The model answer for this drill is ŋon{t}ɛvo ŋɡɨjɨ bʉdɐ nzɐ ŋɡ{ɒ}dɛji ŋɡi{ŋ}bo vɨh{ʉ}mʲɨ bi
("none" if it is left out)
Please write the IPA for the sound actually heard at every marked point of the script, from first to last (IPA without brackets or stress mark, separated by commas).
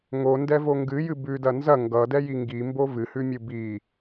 d, ʌ, m, ʉ